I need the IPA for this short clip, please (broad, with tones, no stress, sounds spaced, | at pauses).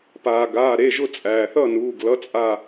p aː˩ ɡ aː˩˧˩ ɾ e˩˧˩ ʒ ʊ˥˨ t͡sʼ æː˩ θ ʌ˥˨ n uː˩˧˩ ɡ l ʌ˧˥˧ t͡sʼ a˥˨